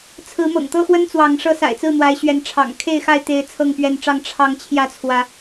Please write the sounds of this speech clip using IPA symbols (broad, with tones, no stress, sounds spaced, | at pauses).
t͡sʰ ɹ̩˨˦ m ɤ̰˨˩ ŋ t̪ ɤ˦ x w ə˦ n t͡s w ɑ˨˦ ŋ ʂ ɤ˦ s a̰˨˩ ɪ̯ t͡s ɹ̩˥˨ n̪ w a˨˦ ɪ̯ ɕ ɥ ɛ˨˦ n ʈ͡ʂʰ ɑ̰˨˩ ŋ kʰ e˥˨ ɪ̯ x a˥˨ ɪ̯ t̪ e˦ ɪ̯ t͡sʰ ɤ˥˨ ŋ p ɥ ɛ˥˨ n ʈ͡ʂ ɑ˥˨ ŋ ʈ͡ʂʰ ɑ˨˦ ŋ t͡ɕʰ j ä˥˨ t͡sʰ w ä˨˦